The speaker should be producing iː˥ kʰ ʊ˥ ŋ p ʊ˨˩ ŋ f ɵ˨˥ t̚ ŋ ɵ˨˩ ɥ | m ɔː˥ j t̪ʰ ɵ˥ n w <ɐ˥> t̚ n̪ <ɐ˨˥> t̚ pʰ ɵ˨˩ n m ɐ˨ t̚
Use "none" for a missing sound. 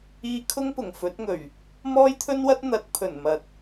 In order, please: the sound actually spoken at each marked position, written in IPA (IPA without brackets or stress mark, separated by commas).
ɐ˥, ɐ˨˥